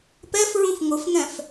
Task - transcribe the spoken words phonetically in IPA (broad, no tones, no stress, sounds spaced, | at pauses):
p ɛ f ɹ ũ f ŋ ʊ f ŋ ɛ̃ f